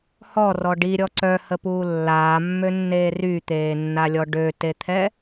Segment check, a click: present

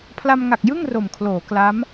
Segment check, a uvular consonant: absent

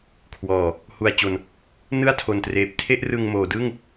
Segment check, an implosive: absent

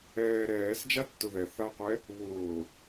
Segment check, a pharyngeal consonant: absent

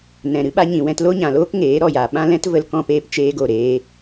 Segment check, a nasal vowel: present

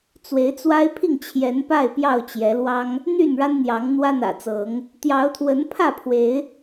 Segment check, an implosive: absent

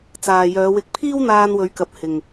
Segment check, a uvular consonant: absent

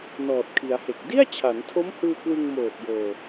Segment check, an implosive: absent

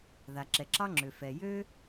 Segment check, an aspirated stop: absent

